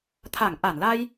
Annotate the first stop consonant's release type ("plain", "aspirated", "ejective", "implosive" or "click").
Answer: aspirated